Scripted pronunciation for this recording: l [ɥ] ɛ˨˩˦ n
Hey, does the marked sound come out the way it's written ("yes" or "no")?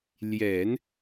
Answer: no